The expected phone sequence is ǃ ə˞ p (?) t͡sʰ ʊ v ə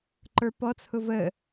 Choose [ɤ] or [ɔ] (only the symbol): ɔ